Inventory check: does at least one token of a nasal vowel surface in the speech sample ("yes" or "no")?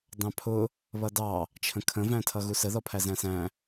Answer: yes